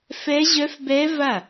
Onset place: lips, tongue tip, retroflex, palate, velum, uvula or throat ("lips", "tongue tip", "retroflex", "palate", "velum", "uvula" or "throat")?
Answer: lips